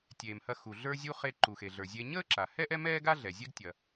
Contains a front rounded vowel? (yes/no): no